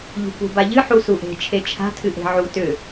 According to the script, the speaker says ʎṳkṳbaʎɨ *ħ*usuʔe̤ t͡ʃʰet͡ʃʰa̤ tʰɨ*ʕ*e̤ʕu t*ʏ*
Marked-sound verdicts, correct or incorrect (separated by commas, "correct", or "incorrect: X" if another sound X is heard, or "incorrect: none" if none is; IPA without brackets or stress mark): correct, incorrect: ʔ, correct